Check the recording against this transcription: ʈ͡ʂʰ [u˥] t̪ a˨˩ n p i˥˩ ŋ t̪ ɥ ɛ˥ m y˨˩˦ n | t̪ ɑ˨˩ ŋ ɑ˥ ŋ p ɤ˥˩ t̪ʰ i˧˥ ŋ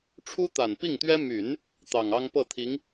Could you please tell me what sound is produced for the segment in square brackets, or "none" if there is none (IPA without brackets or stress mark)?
u˥